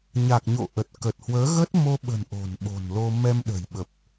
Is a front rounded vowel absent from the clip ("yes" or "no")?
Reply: yes